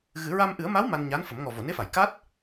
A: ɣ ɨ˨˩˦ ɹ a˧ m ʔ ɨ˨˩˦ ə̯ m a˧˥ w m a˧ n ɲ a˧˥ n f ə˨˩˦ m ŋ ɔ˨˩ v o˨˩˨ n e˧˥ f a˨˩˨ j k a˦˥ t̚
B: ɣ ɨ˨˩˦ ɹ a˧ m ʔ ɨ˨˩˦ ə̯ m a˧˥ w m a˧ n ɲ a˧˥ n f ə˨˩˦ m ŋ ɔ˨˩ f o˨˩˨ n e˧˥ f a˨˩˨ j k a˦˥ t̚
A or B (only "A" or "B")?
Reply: A